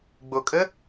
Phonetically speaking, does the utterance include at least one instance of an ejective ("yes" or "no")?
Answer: yes